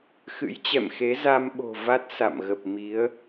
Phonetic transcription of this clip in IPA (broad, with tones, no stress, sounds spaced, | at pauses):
x ɨ̰˧˥ j t͡ɕ ɛ̰˧˨ m x e˨˦ z a˧ m ɓ o̤˨˩ v a˦˥ t̚ s a̰˧˨ m ɣ ə˨˩ p̚ m i˨˦ ə̯